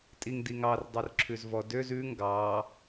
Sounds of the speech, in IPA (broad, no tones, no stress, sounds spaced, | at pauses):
tʼ i ŋ d i ŋ ɑ r dˤ ø r ǁʰ ʉ z v ɔ d ø z ʉ ŋ ɡ ɑ